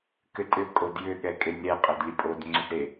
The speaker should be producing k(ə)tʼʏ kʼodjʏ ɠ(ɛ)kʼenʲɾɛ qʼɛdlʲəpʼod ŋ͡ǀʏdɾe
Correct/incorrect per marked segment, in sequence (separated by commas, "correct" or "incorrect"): incorrect, correct